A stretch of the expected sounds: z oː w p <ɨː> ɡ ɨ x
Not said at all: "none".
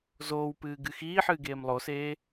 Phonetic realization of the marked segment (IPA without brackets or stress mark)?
ɨː